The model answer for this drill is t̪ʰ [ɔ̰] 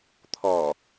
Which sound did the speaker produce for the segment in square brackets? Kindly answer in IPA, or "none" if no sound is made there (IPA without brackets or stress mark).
ɔ